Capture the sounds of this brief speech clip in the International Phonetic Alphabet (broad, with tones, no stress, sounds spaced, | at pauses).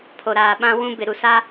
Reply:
pʰ o˨ ɾ aː˨ ɓ ã˦ w ũ˦ b ɪ˨ ɾ u˨ s aː˦